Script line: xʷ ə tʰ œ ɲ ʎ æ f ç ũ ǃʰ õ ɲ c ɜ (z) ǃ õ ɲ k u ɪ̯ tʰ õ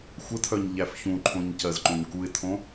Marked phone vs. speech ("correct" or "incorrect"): correct